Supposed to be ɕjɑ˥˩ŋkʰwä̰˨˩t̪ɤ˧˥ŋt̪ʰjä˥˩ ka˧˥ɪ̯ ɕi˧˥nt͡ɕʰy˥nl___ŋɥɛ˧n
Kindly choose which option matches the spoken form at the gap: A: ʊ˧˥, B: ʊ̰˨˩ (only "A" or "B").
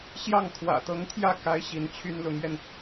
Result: A